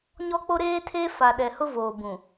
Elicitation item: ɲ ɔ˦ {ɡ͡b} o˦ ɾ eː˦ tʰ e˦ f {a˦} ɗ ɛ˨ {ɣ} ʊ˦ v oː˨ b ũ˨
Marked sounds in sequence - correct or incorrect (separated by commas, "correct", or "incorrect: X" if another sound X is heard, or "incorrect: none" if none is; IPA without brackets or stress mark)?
incorrect: k͡p, incorrect: a˨, incorrect: h